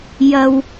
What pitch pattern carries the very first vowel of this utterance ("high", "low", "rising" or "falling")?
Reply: low